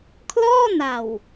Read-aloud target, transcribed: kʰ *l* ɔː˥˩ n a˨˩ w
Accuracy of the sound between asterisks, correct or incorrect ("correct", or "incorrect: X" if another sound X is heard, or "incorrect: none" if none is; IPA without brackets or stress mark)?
correct